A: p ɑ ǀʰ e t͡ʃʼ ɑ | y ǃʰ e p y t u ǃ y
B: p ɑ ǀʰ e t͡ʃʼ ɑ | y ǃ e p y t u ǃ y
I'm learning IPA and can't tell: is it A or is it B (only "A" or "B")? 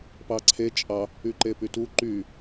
B